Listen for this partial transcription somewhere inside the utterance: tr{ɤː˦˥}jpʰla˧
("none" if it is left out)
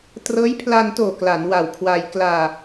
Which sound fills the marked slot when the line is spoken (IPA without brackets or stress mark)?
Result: ɤː˦˥